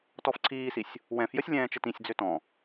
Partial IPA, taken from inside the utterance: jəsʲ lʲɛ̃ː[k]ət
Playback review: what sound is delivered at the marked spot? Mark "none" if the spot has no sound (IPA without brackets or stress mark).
t͡ʃ